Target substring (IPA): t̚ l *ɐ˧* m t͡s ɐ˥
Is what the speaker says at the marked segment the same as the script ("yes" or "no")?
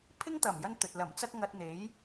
no